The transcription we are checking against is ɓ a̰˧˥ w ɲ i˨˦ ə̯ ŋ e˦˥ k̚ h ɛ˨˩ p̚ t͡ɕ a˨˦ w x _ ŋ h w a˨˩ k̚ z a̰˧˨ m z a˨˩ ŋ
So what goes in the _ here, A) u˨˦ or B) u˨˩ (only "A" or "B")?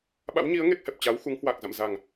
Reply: A